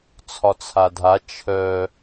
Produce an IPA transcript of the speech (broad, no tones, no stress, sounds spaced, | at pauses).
t͡sʰ ɒ t͡sʰ a dʱ a t͡ʃʰ œ